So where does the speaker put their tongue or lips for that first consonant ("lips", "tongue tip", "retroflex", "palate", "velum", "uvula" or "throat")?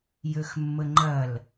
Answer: palate